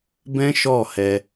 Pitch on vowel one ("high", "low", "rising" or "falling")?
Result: high